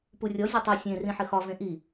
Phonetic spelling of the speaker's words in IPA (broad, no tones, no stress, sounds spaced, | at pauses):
p u rʲ ɔ zʲ ɒ tˤ i sʲ ẽ r ĩ ħ ɘ x ɒ v ẽ ʔ i